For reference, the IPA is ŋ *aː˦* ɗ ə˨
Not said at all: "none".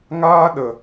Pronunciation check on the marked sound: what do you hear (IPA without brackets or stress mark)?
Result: aː˦